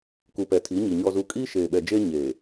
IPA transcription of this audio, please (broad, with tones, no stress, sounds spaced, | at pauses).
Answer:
k u˨ p ɛ˨ tʰ i˨˦ ɲ i˨ ɲ ɔ˨ z u˨ kʼ iː˦ ʃ eː˨ ɓ ɛ˨ d͡ʒ eː˦ ɲ eː˨